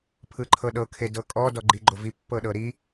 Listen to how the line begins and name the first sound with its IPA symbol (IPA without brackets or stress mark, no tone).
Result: pʰ